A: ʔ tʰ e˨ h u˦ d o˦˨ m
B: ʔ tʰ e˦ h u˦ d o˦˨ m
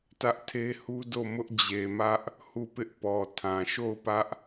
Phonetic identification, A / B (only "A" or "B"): B